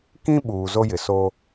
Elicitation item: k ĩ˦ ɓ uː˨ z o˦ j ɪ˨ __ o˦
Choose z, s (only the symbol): s